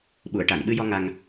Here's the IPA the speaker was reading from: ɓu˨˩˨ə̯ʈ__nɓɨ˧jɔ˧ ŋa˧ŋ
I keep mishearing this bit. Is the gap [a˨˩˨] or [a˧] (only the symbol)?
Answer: a˨˩˨